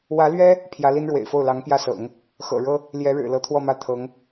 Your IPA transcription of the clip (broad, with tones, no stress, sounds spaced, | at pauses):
w ä˧˥ l ɥ ɛ˥ | pʰ j ä˧˥ l i˥ n ɻ w ḛ˨˩ ɪ̯ f o˥˩ ʊ̯ l ɑ˧˥ ŋ p j ä˥˩ s ɤ̰˨˩˦ ŋ | x ɤ̰˨˩ ɻ ɤ˥ | l j ɛ˧˥ ɻ ɻ̩˨˩ l ɤ˧˥ t̪ʰ w ɔ˥˧ m ä˥˩ t̪ʰ ɤ˧˥ ŋ